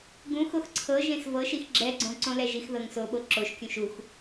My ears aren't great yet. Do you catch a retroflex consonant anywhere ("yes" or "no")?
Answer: no